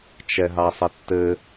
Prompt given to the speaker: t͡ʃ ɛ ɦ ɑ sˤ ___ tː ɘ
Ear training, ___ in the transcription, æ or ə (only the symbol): ə